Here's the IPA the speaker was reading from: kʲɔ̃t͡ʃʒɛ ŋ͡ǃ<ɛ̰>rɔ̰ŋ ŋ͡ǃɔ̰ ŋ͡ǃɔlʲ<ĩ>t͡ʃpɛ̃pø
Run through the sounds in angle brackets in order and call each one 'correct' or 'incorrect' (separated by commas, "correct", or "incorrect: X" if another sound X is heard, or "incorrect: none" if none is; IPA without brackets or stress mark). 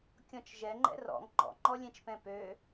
correct, incorrect: ẽ